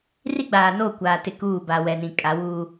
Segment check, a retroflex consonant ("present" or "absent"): absent